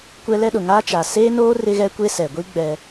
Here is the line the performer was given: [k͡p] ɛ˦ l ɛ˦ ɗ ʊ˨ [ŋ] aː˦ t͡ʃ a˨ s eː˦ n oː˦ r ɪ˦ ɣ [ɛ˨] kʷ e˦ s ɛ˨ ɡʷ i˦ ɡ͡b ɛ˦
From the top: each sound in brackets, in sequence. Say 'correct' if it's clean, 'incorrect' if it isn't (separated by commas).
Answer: incorrect, correct, incorrect